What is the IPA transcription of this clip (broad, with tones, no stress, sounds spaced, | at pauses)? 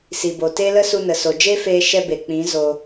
s i˨ b o˨ t e˦ l ə˦ s u˧ n ə˨ s o˨ d͡ʒ e˦ f eː˧ ʃ ɛ˧ b e˨ k͡p ĩ˨˦ z o˧